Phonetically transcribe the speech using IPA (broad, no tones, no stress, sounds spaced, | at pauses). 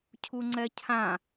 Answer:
cʰ u ŋ͡ǀ ɛ cʰ ã